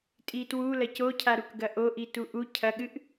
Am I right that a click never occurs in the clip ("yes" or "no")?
yes